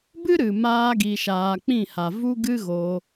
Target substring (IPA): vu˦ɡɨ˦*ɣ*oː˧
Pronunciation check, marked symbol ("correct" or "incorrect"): correct